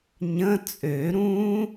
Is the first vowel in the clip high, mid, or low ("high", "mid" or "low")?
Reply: mid